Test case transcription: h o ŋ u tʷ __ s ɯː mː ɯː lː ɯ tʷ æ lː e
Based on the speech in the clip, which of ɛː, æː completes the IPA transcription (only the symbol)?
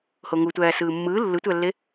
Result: æː